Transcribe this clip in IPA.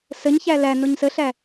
s ə ɲ ç æ l æ n o ɲ s ə ɬ æ

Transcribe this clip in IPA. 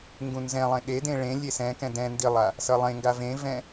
ŋ ɡ ũ n z ɛ̃ lˠ ẽ ɗ e d ẽ ɭ ẽ lʲ e s ɛ̃ k ɛ̃ d ɛ̃ n d i lˠ a | s ʌ lˠ ẽ ŋ ɡ a v ẽ v ɛ̃

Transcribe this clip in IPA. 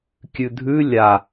kʲ ʉ dʱ ʉ lʲ a

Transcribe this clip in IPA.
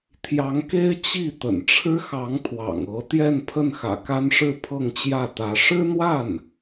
t̪ʰ j ɑ˧˥ ŋ k e˥ ɪ̯ t͡ɕ i˥˩ t̪ ə̰˨˩ n ʈ͡ʂʰ ɻ̩˥ x ɑ˧˥ ŋ t̪ʰ w ɑ̰˨˩ ŋ ɤ˧˥ t̪ j ɛ˥˧ n pʰ ə˥˩ n x ä̰˨˩ k a˥ n ʂ ɻ̩˥˧ pʰ ɤ˥˧ ŋ t͡ɕ j ä˥˩ t̪ ä˧˥ ʂ ɻ̩˥ n̪ w a˥˩ n

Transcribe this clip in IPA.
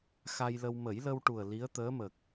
x a˧ j l ə˧ w m ə˨˩˦ j l ə˧ w ʈ u˨˩ ə̯ l i˧˥ ə̯ t̪ əː˧˥ m ə˨˩ k̚

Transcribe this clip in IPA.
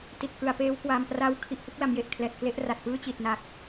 t i˨˩ t̚ k ɯ˩˦ a̯ p eː˦˥ w k w aː˧ m p r a˥˩ w kʰ i˦˥ ʔ h ɯ˦˥ k̚ l a˩˦ m j e˨˩ ʔ kʰ l ɛː˨˩ t̚ k l e˥˩ ʔ r a˨˩ t̚ p ɯː˥˩ t͡ɕ i˨˩ t̚ n a˨˩ k̚

